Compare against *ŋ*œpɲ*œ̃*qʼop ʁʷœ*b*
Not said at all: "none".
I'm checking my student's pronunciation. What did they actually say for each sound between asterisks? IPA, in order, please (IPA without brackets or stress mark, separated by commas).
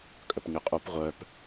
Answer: kʼ, œ, p